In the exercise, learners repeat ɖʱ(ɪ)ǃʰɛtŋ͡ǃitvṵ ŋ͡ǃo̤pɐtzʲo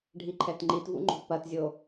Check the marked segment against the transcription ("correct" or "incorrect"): incorrect